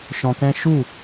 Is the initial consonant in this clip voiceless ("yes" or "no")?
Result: yes